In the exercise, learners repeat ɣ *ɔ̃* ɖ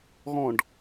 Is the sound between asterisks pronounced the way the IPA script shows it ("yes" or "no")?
yes